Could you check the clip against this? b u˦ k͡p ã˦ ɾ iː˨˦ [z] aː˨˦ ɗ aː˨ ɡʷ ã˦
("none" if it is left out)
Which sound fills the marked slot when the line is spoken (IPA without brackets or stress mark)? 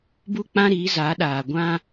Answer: z